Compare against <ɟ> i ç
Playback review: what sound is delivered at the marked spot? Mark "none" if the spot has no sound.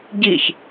ɟ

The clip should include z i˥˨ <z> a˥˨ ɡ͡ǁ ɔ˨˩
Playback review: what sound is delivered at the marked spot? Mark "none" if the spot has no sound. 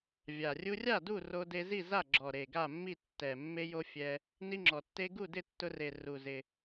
z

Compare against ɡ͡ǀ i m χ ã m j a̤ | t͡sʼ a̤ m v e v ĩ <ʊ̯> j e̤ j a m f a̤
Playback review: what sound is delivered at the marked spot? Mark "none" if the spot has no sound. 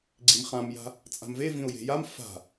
ʊ̯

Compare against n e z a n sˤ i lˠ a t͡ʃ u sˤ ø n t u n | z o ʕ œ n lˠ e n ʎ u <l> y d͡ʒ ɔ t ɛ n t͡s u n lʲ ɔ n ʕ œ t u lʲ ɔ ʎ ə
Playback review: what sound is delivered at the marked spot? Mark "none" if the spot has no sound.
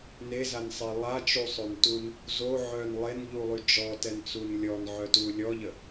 lˠ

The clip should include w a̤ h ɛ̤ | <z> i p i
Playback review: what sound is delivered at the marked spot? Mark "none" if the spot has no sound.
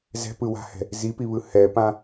z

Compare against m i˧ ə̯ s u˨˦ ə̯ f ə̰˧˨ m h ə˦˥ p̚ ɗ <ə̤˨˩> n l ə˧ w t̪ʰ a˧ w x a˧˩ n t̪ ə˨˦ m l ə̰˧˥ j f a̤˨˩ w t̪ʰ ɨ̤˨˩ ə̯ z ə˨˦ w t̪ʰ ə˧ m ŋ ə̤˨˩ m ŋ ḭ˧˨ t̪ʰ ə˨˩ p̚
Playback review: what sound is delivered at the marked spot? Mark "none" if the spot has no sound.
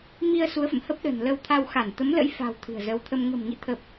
ə̤˨˩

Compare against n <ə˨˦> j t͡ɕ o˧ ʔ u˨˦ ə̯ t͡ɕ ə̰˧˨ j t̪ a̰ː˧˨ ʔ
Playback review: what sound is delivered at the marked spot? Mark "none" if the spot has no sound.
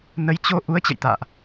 ə˨˦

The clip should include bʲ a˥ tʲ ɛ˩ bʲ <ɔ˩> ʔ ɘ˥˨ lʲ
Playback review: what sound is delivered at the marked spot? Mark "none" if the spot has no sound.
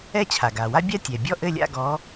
ɔ˥˨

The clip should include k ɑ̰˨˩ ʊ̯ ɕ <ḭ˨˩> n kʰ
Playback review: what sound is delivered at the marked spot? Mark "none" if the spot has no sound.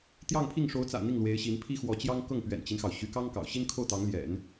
i˥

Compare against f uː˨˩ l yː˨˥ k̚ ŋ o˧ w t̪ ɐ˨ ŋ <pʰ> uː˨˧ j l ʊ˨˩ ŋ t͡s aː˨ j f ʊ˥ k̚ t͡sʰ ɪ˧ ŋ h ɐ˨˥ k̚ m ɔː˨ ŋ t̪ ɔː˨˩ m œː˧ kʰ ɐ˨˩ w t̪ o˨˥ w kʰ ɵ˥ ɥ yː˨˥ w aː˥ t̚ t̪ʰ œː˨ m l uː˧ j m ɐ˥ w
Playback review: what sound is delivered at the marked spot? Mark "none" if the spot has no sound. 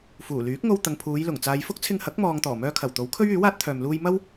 pʰ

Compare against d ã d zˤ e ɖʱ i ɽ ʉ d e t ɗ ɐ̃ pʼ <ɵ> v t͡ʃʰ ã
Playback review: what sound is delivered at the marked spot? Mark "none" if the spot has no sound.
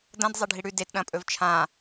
ɵ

